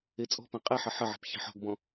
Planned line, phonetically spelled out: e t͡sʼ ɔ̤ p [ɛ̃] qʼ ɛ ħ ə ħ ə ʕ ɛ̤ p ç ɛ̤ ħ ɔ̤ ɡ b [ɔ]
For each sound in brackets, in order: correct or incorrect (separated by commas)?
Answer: correct, incorrect